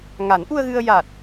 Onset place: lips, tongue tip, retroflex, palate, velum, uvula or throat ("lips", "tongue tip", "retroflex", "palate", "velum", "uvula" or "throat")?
velum